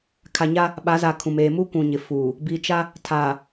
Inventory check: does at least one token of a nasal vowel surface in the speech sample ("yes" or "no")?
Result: yes